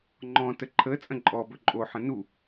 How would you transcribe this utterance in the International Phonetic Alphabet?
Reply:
ŋ͡ǃɔ̃tə ǃʰə t͡sʼə̃ǃʼɔbɵ ǃʼoħə̃ nu

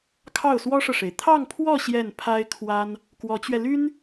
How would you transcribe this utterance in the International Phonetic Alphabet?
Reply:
kʰɑ˥˩ʊ̯swɔ˥ʂɤ˨ʂe˩ɪ̯ t̪ʰɑ˥˧ŋpʰwɔ˥˧ ɕjɛ˥˩npʰa˥ɪ̯ kʰwa˥n | kwɔ˧˥t͡ɕɥɛ˧ly˥n

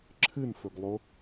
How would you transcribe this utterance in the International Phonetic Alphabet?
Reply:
ǁʰɨnfɵɡlˠo

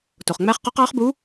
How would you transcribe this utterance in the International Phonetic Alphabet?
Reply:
to˩χŋ͡mæ˧˥χqɔ˧˥q ɑ˧˥χbu˧˥

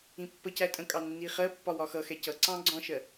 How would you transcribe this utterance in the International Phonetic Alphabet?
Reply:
ĩpːə cætʼə̃kʼɑ nːiχɜpːɒ wɒxʌxɛ cʌǀɑ̃ ɡ͡ǀɔ̃ʃɜ

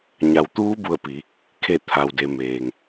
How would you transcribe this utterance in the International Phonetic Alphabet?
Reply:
ɲa˩wt̪uː˧˥bu˧˩ə̯pi˩˧ | kʰe˧˩t̪ʰa˩wde˩meː˩ŋ

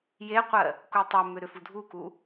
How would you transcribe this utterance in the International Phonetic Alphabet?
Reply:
jeqʷɜ | kutˤomʏ ɾʏfudʱuku

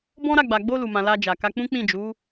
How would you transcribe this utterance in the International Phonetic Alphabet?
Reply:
bɔ̃˦ɾa˦˨ ɡ͡ba˨ ɡ͡bo˧ lu˨mã˨ la˧d͡ʒa˨ka˧k͡pũ˦ k͡pĩ˦˨d͡ʒu˨˦

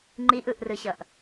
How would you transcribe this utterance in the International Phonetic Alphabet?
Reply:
ŋ͡ǃiʔɯʔrɯɕʌʔ

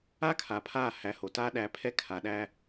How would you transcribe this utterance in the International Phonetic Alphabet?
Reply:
a˦ kʰa˨pʰa˦˨hæ˨˦ ho˨ta˦ ɗæ˨pʰɛ˦ kʰa˨ɗæ˦

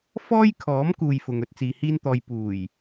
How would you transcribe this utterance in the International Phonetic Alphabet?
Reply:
fɔː˥jkʰɔː˨˥m kuː˧jfʊ˨ŋ ɵ˧t̚t͡siː˨hiː˥nt̪ɔː˧j puː˨˩j

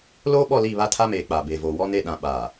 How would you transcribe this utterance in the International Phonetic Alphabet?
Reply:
loː˦ɓɔ˦˨li˦˨ βa˦tʰa˦meː˨ k͡pa˨be˨ voː˨wɔ˦ne˦˨ɗã˨ ɓa˨

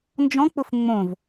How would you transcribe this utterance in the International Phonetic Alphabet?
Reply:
nd͡ʒɔ̃k͡pʊf ŋ͡mõv

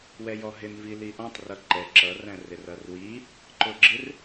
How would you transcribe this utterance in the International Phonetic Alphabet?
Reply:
wɛjɔɦɪn viliʔɔ̃tˤ rʌǃɛ ǁʌ ræ̃rɪrʌrwi | ǃʊɡ͡ǁɪr

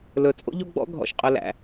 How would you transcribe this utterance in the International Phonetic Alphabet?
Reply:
lɵ˨ t͡sʼo̰˦ʎo˦ɡ͡bɔ̰˦ ɡʱɔ̰˨ʃ qʼɵ˨læ̰˨

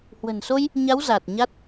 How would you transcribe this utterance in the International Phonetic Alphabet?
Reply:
hwə̤˨˩nso˧j | ɲa˨˦w za˨˩t̚ɲa˦˥t̚

